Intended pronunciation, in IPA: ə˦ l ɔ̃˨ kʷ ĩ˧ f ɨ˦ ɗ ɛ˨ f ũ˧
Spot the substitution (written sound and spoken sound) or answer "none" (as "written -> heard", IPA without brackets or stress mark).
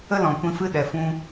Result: none